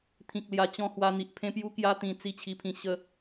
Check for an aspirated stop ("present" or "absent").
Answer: present